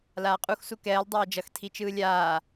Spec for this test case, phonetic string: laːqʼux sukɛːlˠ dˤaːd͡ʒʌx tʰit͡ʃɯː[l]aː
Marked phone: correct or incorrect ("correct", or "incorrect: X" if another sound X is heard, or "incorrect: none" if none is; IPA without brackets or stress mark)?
incorrect: lʲ